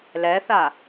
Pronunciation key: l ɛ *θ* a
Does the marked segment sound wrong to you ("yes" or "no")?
no